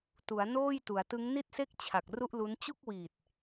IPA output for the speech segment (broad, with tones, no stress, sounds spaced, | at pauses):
t u˩˦ a̯ n oː˥˩ j t u˩˦ a̯ t ɯ˦˥ ŋ n i˦˥ t̚ s e˦˥ k̚ t͡ɕʰ a˨˩ k̚ r u˥˩ ʔ l u˦˥ n t͡ɕ u˥˩ k̚ w iː˨˩ t̚